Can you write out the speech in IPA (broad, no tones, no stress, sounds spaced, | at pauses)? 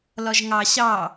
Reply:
l ɒ ʒ ŋ ɑ ɕ ɑ